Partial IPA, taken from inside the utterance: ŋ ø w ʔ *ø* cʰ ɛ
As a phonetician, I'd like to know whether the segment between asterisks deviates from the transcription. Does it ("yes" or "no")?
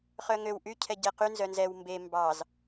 yes